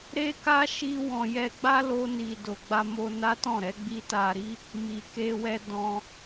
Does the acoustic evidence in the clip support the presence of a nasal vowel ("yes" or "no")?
yes